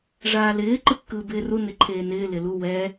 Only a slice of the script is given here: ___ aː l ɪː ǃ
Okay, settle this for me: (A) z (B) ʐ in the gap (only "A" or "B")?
B